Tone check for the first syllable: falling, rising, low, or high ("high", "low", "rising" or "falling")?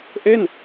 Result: falling